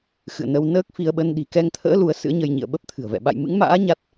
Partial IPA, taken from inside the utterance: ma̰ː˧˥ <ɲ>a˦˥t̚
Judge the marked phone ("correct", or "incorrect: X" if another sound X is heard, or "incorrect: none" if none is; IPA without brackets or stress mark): correct